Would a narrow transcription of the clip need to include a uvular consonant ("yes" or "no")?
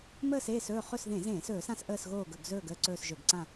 yes